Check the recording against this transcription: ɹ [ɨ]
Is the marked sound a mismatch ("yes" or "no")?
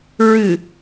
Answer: no